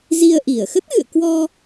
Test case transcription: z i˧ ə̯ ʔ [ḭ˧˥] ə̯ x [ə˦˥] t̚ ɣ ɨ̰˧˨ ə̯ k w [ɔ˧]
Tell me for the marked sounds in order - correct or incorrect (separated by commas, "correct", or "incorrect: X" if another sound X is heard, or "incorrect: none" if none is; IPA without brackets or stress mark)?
incorrect: i˧˩, correct, correct